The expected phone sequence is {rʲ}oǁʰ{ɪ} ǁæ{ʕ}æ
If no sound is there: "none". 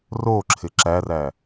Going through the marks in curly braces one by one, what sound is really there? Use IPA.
r, ɪ, r

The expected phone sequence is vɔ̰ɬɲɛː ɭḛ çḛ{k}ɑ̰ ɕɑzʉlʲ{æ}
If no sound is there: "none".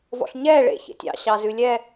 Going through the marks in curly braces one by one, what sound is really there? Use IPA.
tʲ, ɛ

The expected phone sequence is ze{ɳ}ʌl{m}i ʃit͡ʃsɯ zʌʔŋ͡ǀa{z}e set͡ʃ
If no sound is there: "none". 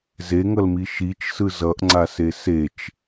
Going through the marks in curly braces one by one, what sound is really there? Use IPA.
ŋ, m, s

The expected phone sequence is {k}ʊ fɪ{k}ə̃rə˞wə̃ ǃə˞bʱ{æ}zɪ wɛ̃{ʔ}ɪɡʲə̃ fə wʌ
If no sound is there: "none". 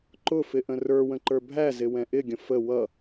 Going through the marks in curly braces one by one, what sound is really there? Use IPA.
ǃ, ʔ, æ, ʔ

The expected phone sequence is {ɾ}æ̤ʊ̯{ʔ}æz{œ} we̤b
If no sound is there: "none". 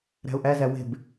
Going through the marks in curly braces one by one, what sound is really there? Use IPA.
ɾ, ʔ, æ

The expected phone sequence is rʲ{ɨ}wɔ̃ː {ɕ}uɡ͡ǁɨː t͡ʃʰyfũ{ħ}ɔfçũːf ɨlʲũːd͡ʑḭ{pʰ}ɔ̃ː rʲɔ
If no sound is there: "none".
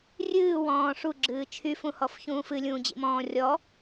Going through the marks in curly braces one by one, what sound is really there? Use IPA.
ɨː, ʂ, h, m

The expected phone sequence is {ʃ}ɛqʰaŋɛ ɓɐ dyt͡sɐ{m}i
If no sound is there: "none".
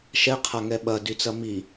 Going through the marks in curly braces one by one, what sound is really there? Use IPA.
ʃ, m

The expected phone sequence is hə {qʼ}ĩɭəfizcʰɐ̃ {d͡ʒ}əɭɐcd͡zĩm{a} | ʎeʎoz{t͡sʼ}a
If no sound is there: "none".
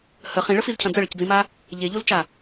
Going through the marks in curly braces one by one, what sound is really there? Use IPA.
χ, d͡z, a, t͡ʃ

